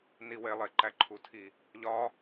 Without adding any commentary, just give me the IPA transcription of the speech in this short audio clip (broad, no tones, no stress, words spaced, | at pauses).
niwe lˠeǃæǃʰutʰi | ʎɒ